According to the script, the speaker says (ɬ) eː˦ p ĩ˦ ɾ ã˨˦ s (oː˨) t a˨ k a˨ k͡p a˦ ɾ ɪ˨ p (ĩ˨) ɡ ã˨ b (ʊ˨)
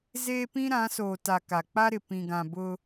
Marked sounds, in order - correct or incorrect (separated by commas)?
incorrect, correct, correct, incorrect